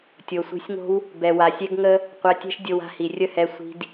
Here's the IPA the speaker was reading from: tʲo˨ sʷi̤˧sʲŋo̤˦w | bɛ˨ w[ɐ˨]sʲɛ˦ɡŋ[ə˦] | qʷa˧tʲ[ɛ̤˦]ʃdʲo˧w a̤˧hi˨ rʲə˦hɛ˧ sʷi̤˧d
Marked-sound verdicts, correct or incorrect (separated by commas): incorrect, correct, correct